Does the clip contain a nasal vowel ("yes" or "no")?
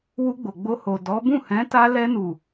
yes